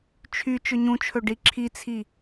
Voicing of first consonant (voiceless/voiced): voiceless